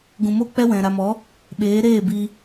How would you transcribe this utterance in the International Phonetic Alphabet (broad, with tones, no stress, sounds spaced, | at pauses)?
ɡ ũ˨ m o˧ k͡p ɛ˦ w ɛ̃˨ ɾ a˨ m ɔ˨˦ | ɓ eː˨˦ ɾ eː˦˨ b iː˧